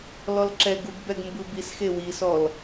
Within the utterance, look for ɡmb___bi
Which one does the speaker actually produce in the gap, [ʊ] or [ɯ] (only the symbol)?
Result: ɯ